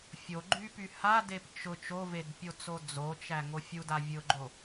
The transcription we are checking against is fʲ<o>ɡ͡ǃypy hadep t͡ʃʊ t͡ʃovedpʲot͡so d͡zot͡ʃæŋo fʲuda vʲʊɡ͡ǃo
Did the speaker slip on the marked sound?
no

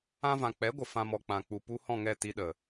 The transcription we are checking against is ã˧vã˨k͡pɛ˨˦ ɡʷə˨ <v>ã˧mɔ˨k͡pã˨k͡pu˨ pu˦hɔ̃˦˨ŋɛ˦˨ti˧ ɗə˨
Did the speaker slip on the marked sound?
yes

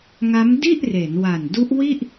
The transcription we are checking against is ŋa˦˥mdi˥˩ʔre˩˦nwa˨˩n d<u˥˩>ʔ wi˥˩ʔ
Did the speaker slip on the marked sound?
yes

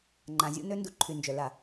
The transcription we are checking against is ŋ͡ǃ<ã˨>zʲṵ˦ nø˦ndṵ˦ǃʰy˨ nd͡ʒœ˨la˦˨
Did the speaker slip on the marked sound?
no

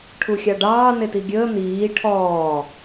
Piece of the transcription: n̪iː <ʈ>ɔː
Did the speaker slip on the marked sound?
yes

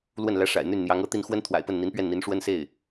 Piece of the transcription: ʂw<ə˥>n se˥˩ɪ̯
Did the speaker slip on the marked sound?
no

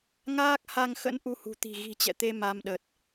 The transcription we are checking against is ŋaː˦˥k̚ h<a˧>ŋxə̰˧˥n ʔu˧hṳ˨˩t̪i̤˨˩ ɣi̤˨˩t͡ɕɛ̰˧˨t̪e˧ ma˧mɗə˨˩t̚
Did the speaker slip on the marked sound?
no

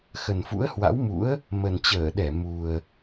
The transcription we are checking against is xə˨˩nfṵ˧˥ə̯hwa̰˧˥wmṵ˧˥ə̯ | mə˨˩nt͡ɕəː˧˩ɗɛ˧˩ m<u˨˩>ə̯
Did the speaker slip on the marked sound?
no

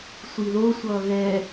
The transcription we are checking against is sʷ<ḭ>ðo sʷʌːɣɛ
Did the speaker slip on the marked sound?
yes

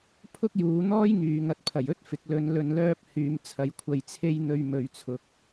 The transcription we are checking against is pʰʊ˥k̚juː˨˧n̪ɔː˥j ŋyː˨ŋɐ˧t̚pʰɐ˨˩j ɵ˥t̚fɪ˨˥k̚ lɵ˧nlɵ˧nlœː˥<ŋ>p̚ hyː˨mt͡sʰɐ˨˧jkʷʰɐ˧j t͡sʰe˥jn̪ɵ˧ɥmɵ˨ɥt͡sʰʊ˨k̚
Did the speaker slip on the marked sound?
yes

